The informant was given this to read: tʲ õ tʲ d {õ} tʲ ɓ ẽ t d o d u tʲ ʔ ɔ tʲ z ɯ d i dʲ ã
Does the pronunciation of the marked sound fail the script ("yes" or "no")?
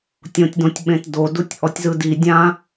no